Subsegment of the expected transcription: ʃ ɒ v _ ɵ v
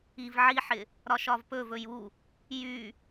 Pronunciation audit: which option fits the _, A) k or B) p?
B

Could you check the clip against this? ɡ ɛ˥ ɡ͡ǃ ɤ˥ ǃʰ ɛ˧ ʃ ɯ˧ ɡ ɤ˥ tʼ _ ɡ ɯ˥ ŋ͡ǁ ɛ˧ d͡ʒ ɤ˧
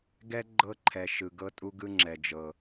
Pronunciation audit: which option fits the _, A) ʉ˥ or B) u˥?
B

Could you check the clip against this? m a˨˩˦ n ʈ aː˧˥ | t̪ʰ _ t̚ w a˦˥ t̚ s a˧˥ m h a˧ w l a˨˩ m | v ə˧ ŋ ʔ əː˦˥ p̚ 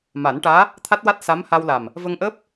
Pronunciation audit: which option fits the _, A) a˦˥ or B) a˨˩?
A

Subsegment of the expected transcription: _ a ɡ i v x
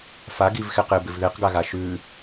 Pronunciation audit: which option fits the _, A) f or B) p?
A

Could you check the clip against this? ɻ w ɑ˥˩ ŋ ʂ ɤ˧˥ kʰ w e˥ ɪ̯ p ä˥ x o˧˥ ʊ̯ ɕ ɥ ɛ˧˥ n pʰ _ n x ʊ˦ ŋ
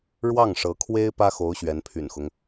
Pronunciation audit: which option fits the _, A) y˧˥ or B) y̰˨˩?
B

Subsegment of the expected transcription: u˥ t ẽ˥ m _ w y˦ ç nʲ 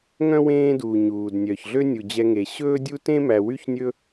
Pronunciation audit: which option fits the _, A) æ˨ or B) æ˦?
A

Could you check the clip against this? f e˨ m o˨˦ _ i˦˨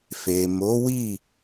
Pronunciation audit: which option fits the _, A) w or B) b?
A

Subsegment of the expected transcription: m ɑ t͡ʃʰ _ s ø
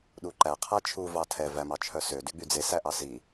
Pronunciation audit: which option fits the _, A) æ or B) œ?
B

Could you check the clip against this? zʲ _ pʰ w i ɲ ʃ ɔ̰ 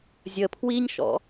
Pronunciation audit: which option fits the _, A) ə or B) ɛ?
A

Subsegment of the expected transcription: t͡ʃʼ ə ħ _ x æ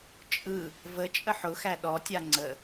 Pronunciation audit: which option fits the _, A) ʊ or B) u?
A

